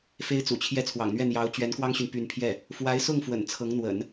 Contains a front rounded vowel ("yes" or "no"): yes